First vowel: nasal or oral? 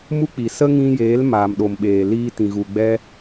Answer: oral